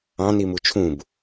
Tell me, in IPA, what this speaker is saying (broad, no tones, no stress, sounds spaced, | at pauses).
ɑ̃ n i m u t͡ʃʰ ũ b